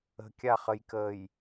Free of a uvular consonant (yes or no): no